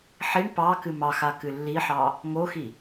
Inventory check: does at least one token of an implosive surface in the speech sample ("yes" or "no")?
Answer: no